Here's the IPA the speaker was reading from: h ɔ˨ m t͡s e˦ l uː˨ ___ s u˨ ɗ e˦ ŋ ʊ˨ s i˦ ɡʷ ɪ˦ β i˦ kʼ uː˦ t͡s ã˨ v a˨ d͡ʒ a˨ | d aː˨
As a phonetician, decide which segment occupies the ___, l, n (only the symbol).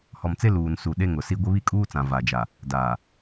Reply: n